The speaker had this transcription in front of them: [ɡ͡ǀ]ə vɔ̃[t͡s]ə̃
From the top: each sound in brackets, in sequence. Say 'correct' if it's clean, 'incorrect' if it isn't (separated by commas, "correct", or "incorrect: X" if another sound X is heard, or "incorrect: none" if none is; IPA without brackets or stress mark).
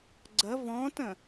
correct, incorrect: t